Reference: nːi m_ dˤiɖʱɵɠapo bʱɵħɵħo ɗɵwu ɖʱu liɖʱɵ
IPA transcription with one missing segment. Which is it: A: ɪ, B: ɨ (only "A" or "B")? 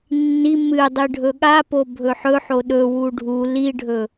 B